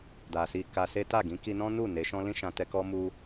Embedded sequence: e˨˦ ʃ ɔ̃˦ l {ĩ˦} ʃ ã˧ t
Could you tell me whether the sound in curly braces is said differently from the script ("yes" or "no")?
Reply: no